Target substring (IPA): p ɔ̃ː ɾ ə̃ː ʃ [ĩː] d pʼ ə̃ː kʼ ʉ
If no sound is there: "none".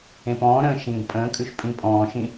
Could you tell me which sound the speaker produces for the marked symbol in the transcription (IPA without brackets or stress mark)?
ĩː